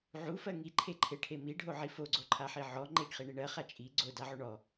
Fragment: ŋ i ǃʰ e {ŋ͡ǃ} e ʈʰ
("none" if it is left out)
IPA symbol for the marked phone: ǃʰ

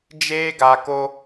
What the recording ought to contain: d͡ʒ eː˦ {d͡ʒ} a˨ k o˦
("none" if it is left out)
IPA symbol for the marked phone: ɡ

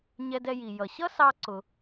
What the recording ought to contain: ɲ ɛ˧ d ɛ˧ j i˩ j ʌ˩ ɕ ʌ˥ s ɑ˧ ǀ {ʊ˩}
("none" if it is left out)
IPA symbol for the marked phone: ʊ˩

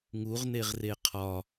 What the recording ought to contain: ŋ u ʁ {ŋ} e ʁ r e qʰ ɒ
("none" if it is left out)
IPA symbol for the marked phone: n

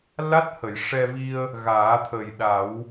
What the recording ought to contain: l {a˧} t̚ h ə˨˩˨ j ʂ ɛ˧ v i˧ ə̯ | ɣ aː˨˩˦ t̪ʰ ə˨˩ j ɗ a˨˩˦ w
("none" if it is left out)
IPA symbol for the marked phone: a˦˥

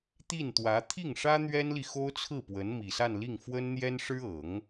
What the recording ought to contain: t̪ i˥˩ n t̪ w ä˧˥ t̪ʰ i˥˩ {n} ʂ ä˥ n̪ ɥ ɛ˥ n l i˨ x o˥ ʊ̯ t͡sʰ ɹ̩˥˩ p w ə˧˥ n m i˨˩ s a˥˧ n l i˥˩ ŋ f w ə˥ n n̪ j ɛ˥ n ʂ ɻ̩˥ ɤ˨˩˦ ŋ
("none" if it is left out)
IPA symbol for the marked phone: ŋ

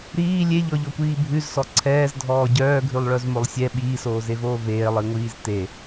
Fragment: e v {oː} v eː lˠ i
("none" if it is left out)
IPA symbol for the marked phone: oː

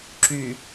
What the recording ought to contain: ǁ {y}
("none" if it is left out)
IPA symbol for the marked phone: y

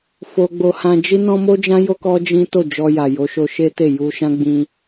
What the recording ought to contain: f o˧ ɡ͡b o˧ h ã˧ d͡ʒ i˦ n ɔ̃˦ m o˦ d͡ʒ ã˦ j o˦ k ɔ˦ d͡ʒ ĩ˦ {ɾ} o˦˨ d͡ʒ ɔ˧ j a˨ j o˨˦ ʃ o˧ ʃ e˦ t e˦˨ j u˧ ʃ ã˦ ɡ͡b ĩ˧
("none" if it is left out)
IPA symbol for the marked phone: t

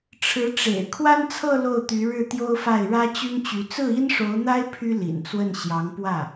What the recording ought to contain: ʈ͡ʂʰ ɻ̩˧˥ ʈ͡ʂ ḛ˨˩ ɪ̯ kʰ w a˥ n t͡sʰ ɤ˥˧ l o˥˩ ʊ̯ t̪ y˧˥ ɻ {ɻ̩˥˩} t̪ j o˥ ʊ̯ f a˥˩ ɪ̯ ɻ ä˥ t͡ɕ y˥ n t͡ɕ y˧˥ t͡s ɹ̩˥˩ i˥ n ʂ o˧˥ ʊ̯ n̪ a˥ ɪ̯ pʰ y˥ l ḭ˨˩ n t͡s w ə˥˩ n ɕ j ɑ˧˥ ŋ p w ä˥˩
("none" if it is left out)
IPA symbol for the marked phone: ɻ̩˥˩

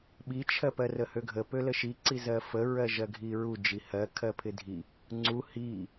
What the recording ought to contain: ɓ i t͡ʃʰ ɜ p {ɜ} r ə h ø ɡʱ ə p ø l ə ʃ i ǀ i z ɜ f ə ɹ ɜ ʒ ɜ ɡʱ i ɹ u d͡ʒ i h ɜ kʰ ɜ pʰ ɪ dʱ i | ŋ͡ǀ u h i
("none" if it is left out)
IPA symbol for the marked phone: ɜ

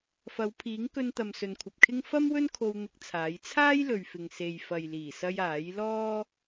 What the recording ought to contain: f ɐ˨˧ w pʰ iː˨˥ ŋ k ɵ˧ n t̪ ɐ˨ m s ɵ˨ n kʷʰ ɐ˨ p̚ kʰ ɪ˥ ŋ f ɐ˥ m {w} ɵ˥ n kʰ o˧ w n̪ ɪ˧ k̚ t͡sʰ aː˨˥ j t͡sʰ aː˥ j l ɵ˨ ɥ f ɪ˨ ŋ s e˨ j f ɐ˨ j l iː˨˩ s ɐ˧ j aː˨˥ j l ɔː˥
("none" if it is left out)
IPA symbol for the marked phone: w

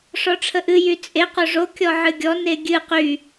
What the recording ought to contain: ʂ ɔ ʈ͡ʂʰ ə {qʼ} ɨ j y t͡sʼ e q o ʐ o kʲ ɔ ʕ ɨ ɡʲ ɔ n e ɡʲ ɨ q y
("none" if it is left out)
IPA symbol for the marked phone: ʔ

